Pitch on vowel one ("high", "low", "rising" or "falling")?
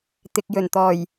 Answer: low